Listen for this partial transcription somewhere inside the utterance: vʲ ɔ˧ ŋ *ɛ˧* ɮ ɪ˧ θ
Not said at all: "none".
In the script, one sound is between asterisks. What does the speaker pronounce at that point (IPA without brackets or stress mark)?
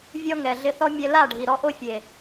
ɛ˨